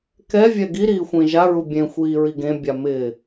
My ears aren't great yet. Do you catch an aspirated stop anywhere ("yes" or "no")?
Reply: no